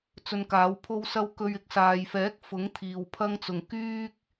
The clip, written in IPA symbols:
t͡s ɵ˧ n k aː˨˥ w pʰ o˥ w s ɐ˥ w k ɵ˧ ɥ ɪ˨˥ k̚ s aː˨ j f ɛː˨˥ k̚ f ʊ˨˥ ŋ t̪ʰ iː˨ w pʰ ɐ˥ ŋ t͡s ʊ˨ ŋ k yː˥ k̚

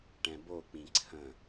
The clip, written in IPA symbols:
ʈ ɛ̃ b o k͡p ĩ ǀʰ ə̃

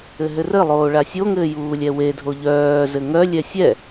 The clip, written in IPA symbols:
ɘ ɦ ɘ r ɘ lˠ oː ɭ a sʲ o ŋ ɘː j uː lʲ ɛ w e dʱ o ʎ œː z ɘ ŋ œ lʲ ɛ sʲ ɛ

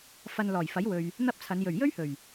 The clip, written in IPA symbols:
f ɐ˧ n l ɔː˨˩ j f ɐ˨˥ j w ɵ˨ ɥ | n̪ ɐ˥ p̚ t͡sʰ ɐ˨˧ n j ɵ˨˩ ɥ j ɵ˥ ɥ h ɵ˨˩ ɥ

